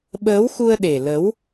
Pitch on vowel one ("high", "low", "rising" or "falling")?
rising